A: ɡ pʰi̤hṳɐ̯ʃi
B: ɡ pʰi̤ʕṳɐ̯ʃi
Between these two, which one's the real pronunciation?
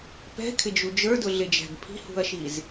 A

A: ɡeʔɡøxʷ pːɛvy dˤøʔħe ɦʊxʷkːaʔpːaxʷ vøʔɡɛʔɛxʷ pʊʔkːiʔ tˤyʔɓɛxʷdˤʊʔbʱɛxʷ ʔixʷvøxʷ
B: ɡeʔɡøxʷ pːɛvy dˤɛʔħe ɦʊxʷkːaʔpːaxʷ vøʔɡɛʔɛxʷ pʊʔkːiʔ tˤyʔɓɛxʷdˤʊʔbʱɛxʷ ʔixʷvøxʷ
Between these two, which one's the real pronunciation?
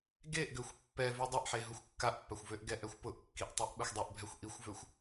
B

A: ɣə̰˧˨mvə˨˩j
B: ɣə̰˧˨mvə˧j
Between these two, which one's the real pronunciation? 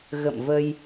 B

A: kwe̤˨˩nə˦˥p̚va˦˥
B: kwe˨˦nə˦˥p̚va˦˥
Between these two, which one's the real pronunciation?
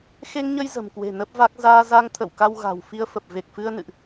A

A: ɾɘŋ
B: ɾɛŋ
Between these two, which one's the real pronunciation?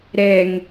B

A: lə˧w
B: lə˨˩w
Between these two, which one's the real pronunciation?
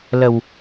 B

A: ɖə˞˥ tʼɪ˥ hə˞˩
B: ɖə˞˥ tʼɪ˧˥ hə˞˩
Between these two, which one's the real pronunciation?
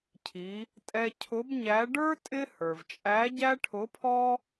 A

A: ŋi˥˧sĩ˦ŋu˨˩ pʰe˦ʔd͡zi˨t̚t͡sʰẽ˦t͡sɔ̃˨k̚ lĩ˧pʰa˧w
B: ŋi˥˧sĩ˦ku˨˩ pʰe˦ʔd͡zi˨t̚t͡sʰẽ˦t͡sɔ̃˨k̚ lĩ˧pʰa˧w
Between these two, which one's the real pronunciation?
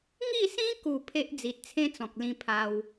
B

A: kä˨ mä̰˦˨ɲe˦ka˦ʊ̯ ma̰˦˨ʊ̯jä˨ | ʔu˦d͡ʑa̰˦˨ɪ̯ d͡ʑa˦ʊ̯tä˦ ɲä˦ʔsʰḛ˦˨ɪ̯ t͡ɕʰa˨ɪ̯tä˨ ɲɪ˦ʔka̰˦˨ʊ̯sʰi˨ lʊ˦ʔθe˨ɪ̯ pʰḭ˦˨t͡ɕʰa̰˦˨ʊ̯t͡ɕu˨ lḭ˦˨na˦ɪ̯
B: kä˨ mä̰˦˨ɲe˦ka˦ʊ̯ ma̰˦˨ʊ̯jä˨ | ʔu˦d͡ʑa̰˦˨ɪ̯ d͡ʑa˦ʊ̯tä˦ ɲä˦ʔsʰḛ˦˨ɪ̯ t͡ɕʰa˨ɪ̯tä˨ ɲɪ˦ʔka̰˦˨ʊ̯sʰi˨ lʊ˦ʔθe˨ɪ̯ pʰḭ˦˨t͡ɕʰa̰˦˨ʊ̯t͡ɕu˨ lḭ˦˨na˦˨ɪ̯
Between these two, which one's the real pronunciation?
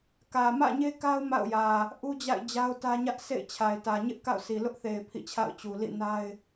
A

